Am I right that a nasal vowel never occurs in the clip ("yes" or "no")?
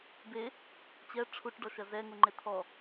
yes